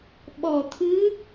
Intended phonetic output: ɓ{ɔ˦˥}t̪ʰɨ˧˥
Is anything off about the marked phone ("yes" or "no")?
yes